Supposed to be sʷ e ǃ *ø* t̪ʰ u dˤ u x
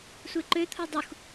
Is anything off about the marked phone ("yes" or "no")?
no